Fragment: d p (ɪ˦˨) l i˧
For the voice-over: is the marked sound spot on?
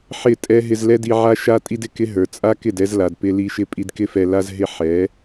no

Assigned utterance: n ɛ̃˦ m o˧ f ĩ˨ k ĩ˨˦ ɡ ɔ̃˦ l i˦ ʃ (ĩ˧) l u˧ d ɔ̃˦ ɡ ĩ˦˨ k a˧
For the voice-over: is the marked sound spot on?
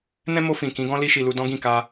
no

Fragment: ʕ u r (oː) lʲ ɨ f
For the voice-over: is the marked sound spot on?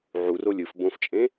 no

